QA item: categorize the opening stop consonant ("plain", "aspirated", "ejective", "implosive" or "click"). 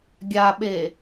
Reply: plain